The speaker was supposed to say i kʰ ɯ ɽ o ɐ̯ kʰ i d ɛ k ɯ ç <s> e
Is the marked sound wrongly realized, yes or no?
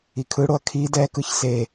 no